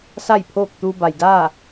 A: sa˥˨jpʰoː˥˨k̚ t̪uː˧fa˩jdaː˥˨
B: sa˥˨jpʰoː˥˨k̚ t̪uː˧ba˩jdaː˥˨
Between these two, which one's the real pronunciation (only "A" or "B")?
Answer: B